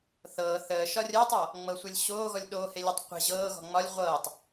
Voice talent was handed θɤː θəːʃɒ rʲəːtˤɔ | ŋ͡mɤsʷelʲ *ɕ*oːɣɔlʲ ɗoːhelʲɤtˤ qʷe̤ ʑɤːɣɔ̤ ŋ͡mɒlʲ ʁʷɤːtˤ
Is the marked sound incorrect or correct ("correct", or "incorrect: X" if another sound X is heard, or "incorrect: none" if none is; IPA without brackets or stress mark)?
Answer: correct